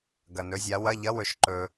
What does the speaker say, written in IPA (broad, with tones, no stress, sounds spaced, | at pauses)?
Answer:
ɡ ɐ˨ n ɵ˨˥ zʲ a˨˥ w ɐ˧˥˧ ʎ ɐ˧˥˧ w ɵ˨ ʃ ǃ ɵ˨